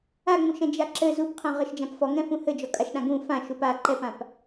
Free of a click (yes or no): no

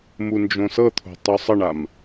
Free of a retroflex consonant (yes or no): no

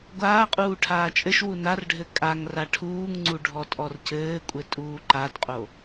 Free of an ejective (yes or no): no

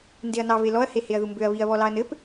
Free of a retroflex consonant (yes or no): yes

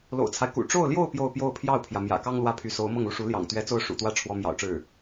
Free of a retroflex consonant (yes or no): no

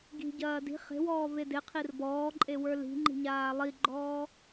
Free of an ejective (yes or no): no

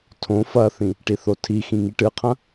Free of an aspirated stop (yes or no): no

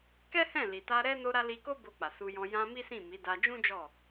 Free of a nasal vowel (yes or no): no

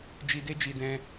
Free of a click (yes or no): yes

